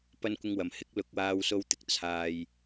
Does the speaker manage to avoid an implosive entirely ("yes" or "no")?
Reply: yes